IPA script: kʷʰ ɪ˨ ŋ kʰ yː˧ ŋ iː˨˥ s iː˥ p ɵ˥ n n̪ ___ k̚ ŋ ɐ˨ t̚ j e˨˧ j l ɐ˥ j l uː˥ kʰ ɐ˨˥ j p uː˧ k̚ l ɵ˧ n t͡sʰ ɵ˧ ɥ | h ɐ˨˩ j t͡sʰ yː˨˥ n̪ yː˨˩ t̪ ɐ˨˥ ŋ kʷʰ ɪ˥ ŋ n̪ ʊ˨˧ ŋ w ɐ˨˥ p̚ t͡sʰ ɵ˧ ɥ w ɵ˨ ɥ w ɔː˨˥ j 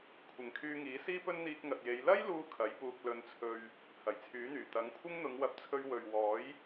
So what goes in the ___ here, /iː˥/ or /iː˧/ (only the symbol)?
iː˧